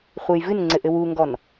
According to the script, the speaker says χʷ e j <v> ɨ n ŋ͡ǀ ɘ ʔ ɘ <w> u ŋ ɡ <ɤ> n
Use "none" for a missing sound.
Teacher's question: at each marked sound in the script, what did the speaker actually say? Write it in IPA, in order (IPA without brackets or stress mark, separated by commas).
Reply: v, w, ɔ